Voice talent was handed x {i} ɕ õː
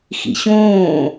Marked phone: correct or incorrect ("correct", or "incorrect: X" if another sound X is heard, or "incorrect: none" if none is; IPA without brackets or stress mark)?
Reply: incorrect: ḭ